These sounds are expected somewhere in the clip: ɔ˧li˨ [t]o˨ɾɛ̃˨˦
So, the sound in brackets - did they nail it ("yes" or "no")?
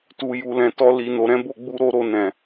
no